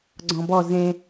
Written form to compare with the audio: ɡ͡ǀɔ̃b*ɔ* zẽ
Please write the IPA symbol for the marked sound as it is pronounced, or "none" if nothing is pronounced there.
ɔ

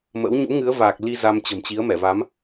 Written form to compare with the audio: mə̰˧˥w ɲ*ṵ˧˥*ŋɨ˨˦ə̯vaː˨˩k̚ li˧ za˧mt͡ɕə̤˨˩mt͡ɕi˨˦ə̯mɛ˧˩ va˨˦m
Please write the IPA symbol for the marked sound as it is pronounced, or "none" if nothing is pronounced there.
ṵ˧˥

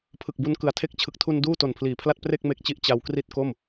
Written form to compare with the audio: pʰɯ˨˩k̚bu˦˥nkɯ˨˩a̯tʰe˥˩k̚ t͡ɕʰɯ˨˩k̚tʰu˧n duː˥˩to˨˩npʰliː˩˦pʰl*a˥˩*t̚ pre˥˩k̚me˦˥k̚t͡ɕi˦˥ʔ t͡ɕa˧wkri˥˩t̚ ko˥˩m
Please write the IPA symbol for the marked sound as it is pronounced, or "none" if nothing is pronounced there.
a˥˩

